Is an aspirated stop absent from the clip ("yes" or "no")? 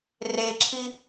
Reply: no